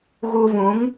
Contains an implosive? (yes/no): no